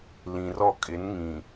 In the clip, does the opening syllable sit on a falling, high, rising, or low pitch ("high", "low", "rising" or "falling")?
low